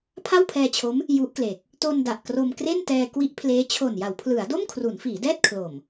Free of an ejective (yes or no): yes